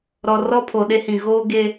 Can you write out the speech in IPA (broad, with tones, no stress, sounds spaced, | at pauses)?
ɾ ɔ˨ r ɔ˦ pʰ o˨ ɗ e˦ h ĩ˨ ɣ oː˦ ɡ e˦